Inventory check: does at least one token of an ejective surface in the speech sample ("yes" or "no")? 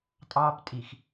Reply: yes